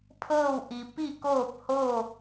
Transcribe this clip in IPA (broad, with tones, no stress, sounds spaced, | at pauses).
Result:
pʰ ɤː˥˨ w ʔ i˩ p i˥˨ k oː˥˨ p̚ h oː˥˨